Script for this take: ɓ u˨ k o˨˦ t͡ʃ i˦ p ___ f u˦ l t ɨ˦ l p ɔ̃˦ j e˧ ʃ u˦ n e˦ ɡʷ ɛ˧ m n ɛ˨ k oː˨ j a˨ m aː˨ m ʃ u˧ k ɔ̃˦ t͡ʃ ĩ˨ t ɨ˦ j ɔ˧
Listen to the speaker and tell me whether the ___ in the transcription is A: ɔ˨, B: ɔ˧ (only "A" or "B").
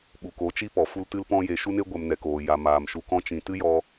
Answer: A